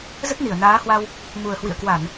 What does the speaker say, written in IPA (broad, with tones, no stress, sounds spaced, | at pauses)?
z ə˦˥ t̚ n i˧˩ ə̯ n aː˨˦ h w a˧ w | m u˨˩ ə̯ h w ḭ˧˨ ə̯ k w a˧˩˨ n